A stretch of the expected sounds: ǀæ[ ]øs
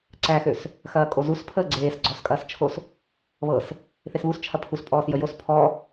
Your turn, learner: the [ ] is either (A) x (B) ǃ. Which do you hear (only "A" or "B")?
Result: A